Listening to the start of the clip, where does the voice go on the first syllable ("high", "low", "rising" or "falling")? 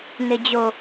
low